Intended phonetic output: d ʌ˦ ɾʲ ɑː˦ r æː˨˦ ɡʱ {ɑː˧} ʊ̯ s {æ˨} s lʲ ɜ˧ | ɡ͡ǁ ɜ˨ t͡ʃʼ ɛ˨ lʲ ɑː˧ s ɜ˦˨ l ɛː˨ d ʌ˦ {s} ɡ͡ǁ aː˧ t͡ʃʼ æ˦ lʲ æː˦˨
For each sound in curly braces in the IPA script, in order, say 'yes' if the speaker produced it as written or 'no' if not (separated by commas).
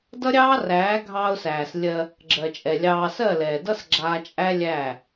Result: yes, no, yes